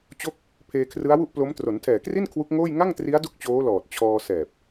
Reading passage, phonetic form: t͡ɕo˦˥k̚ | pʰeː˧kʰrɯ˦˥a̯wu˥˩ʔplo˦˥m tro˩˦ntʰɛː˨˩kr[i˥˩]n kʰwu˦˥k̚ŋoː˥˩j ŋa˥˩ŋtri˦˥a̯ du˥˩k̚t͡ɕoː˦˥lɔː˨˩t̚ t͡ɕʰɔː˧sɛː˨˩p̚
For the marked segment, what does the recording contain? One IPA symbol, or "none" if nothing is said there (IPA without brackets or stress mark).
i˥˩